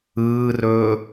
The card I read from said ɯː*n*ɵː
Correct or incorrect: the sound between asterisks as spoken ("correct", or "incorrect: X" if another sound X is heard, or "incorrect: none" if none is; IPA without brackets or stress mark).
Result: incorrect: r